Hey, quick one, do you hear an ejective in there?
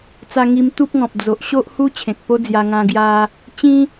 no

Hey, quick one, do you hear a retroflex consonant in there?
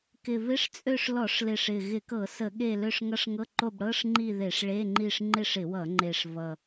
yes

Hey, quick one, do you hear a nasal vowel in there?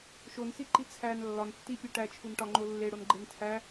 no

